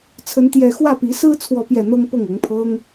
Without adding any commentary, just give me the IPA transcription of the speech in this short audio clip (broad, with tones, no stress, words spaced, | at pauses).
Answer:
t͡sʰə˥nt̪jɛ˥˧ xwä˥˩pi˧˥sɹ̩˥ t͡sʰwɔ˥˧pjɛ˥˩n̪ɤ˥ŋ pɤ˥˩ŋɤ˧˥ŋpʰɤ˥ŋ